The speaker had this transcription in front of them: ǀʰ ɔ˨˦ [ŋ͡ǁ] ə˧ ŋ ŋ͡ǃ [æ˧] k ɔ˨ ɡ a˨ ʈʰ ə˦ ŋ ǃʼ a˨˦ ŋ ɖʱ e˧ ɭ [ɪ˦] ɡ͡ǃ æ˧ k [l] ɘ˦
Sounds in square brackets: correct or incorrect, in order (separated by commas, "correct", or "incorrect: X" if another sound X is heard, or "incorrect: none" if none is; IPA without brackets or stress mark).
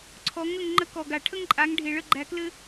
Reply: incorrect: ŋ, incorrect: ə˧, incorrect: ə˦, correct